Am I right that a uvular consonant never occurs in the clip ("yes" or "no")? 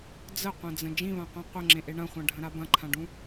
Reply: no